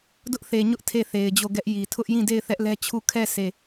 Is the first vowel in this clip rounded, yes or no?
yes